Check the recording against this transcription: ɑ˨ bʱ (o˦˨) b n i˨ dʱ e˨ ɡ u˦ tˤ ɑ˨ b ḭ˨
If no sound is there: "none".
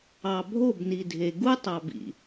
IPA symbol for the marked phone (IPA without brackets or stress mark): o˦˨